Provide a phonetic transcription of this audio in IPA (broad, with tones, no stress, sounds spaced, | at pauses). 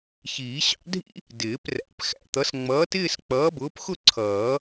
ç iː˨˩˦ ɕ ɑ̰˨˥ dʱ ḭ˥ | d ɪː˨˩˦ p r æ̰˨˥ p x æ̰˧ t̪ ʌ˨˥ s ŋ͡m ʌː˨˥ t ɪː˥˧ s k͡p ʌː˨˥ b ʊː˨˥ p x ʊ˥˧ ǀʰ ʌː˨˩˦